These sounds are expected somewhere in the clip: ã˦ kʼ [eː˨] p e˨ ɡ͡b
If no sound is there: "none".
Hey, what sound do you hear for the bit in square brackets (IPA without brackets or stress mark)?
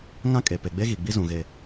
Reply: e˨